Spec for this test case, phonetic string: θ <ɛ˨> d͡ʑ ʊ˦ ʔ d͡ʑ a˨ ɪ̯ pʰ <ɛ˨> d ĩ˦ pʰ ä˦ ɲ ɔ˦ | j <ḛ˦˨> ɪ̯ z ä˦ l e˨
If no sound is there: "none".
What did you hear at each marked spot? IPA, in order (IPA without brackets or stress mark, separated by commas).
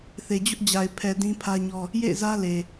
e˨, ɛ˨, ḛ˦˨